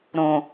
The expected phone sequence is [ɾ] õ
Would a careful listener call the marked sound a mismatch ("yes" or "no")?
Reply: no